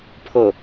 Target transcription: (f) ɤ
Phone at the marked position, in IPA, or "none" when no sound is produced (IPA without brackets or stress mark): pʰ